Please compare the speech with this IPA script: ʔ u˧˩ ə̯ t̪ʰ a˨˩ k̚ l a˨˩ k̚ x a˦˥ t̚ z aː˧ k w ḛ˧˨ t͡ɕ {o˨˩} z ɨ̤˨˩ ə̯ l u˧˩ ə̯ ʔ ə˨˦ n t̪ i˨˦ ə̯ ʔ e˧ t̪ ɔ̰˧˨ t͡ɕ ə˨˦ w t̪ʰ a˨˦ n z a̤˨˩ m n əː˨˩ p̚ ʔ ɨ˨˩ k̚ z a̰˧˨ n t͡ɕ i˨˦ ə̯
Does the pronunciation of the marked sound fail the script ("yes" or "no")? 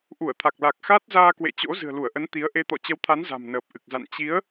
yes